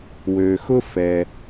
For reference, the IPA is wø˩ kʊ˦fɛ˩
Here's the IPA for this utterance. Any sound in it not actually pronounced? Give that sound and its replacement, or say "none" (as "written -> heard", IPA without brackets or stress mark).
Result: k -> x